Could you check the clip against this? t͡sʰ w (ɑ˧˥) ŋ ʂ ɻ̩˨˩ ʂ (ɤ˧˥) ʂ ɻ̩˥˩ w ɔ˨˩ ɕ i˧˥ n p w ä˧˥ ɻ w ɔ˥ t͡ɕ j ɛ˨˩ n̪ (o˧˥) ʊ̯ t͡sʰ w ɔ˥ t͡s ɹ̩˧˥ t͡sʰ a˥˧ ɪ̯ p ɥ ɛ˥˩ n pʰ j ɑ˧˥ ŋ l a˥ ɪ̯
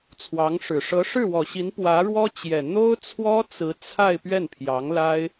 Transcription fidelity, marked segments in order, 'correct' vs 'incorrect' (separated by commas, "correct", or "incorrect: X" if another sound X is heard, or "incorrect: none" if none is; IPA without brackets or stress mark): correct, correct, incorrect: o˥